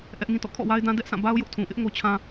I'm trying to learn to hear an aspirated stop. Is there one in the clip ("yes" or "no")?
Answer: yes